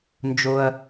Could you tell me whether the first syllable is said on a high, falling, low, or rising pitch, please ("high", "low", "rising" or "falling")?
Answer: low